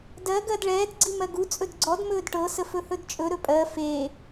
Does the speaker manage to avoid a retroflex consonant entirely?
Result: no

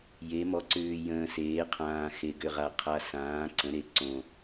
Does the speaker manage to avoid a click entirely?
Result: no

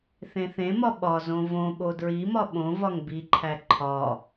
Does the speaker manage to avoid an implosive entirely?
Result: no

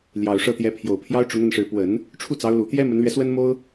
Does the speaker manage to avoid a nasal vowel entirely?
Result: yes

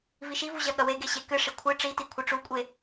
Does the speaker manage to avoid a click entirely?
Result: yes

